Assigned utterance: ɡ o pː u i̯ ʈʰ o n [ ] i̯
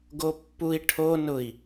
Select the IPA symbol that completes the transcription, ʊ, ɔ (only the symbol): ʊ